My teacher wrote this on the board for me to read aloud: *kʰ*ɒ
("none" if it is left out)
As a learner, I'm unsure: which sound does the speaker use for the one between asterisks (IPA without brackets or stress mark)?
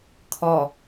kʰ